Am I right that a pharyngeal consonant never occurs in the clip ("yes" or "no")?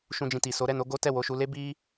yes